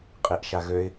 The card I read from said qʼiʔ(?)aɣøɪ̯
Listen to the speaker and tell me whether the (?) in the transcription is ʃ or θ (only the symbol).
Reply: ʃ